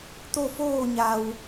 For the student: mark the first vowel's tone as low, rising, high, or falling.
falling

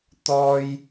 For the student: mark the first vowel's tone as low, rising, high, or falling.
high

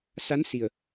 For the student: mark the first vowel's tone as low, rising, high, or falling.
rising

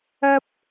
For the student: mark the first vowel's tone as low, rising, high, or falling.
high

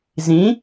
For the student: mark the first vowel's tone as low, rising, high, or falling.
rising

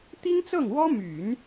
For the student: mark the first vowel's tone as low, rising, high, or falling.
high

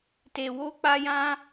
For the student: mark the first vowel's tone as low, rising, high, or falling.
low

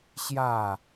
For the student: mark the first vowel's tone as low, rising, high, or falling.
falling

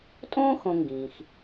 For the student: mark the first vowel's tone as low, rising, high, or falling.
high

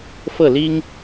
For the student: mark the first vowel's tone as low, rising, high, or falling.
falling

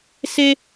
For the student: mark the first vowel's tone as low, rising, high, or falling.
high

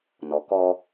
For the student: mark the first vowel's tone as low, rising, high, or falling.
low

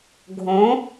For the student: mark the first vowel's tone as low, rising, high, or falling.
rising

